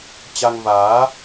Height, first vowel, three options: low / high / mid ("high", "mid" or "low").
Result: low